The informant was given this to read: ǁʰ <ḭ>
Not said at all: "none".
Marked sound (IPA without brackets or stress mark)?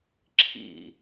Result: ḭ